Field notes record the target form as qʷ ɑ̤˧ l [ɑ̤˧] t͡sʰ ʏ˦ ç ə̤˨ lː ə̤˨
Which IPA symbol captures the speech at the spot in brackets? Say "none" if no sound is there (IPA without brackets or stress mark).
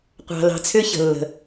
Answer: ɑ̤˧